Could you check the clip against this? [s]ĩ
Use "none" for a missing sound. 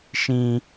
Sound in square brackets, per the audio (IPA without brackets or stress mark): ʃ